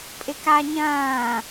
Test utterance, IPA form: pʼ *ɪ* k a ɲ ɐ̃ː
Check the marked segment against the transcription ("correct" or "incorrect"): correct